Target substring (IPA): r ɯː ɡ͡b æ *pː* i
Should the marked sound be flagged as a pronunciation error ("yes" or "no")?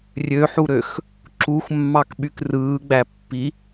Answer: no